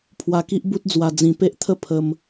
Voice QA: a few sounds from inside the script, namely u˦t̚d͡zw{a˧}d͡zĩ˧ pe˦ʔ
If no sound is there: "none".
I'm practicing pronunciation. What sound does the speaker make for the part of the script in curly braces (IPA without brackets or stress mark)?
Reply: a˧